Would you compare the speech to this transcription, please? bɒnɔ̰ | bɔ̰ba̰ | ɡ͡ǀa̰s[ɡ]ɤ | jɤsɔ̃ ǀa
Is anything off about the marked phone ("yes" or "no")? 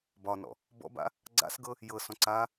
no